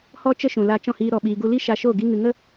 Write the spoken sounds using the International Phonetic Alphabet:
h ɔ˦ t͡ʃ ə˦ ʃ ũ˨ l a˧ t͡ʃ ɔ̃˦˨ h iː˧ ɾ ɔ˧ ɓ iː˧ ɡ u˦ l i˦ ʃ a˧ ʃ o˦˨ ɡ i˧ ŋ ɨ˨ ŋ ə˦

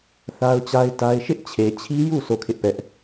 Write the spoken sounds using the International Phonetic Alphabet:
θ a˦ ʊ̯ t͡ɕ a˦ ɪ̯ t a˦ ɪ̯ ʃ ɪ˦ ʔ t͡ɕʰ e˨ t͡ɕʰ i˦ j u˦˨ sʰ o˦˨ kʰ ɪ˦ ʔ p ɛ˦ ʔ

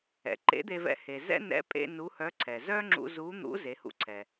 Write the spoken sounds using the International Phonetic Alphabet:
ɛ̰˩˧ ǃ ḛ˧˥ d̪ e˧ v ɛ̰˧ h e˩ z ɛ̰˥ n ɛ̰˧˥ pʼ ḛ˧ n u˧˥ h œ˧˥ ǀʰ ɛ˩ z œ˥ ŋ͡ǁ ṵ˧ z u˧˥ n̪ ṵ˧˥ z e˩˧ h ṵ˧ ǀʰ ɛ˩

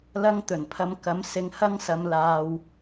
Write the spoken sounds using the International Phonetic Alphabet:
l ɐ˧ ŋ t̪ ɵ˨˩ n pʰ ɐ˨˧ m k ɐ˨˥ m s ɪ˧ ŋ h ɐ˥ ŋ s ɐ˧ m l aː˧ w

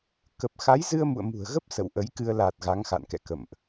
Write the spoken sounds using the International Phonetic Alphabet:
k ə˨˩ p̚ x a˨˦ j z ɨ˧ ə̯ m ṵ˧˨ ə̯ m ṳ˨˩ ə̯ ɣ ə˦˥ p̚ s ə̰˧˨ w ʔ ə˨˦ j k ɨ˧ ə̯ l a˨˩ t̚ ɣ a˨˦ ŋ x a̰˧˨ n k ɛ̰˧˨ k ə̰˧˨ m ʔ

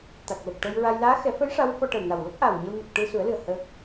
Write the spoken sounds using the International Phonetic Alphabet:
t̪ a˨˩ k̚ l ə˨˩ k̚ ʈ ə˧ j ɹ a˧ j l aː˧˥ x ɛ˨˩˦ f ə˧˥ j ʂ a˧˥ w f ɔ˧ ʈ ə˨˩ w n a˨˩ w l ə˦˥ k̚ ʔ a˨˩ w ɲ ə˧ w n ə˨˩ k̚ ʈ ɨ˧ s u˨˩˦ ə̯ l ɨ˨˩ ə̯ h əː˦˥ k̚

